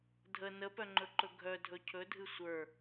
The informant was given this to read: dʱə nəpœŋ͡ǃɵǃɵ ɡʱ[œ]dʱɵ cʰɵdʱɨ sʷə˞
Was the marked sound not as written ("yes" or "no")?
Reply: no